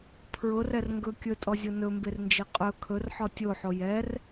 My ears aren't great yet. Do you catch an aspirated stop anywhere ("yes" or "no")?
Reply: yes